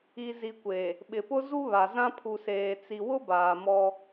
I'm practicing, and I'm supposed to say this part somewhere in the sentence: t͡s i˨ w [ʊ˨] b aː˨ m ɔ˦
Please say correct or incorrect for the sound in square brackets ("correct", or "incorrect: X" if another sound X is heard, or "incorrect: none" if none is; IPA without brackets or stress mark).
incorrect: ʊ˦